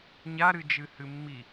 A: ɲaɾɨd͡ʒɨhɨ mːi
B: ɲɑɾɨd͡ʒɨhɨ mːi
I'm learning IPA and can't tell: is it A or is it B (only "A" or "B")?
A